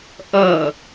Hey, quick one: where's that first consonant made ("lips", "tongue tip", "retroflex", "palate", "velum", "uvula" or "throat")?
throat